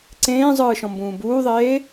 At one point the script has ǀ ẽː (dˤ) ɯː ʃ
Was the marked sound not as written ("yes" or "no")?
yes